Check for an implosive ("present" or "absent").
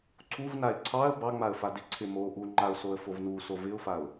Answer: absent